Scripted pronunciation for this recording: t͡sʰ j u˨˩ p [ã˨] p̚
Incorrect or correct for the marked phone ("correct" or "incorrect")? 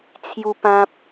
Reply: correct